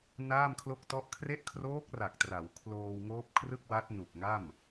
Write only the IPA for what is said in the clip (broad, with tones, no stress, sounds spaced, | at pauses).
n aː˥˩ m kʰ l o˥˩ k̚ t ɔ˥˩ ʔ kʰ r e˦˥ ʔ kʰ r oː˦˥ k̚ r a˨˩ k̚ t r a˩˦ w kʰ l oː˧ w ŋ oː˦˥ p̚ kʰ r ɯ˥˩ k̚ w a˦˥ t̚ n u˨˩ k̚ ŋ a˥˩ m